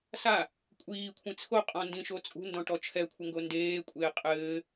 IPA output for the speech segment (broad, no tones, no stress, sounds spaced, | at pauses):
s a | kʷʼ iː kʷʰ ĩ t͡sʰ o qʼ ɔ̃ n d ĩ ʃ o t͡sʼ ṳ n d ɔ̃ ʈ ɔ t͡ʃʰ ɛ kʷʰ ɘ ŋ ɡ o n d eː kʷʼ eː qʼ ɘː